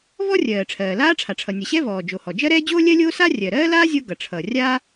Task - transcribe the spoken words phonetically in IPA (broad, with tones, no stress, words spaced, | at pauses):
vɔ˥rʲɜː˩ ʈ͡ʂʰɜː˩laː˥ʈ͡ʂʰa˩ ʈ͡ʂʰʌ˩nʲʌ˩ɕɛ˥ vɔː˩d͡ʒo˩hɔ˩ d͡ʒɜ˥ɾɛː˥ d͡ʑoː˥lʲɜ˥lʲoː˥sa˥ rʲɜ˩ɾɜː˥laː˥ zʲo˥ɡʌ˩ ʈ͡ʂʰʌ˩rʲa˥